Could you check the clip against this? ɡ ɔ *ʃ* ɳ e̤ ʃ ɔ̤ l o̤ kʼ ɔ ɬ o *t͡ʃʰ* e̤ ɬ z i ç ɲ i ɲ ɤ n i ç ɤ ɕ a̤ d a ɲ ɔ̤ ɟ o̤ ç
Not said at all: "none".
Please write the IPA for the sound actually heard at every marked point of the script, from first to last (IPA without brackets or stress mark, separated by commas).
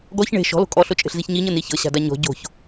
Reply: ç, t͡ʃʼ